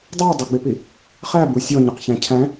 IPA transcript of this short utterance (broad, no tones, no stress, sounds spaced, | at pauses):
dˤ æ dˤ ə ɡ͡b ɪ p i | χ æ b u sʲ ɔ ɲ ʊ q ç æ̃ cʰ æ̃